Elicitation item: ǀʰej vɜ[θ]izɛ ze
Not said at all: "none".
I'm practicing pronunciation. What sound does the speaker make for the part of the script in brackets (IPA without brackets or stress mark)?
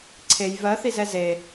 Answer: θ